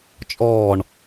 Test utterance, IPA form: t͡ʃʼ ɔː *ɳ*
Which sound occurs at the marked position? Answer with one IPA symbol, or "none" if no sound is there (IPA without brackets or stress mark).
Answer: ɳ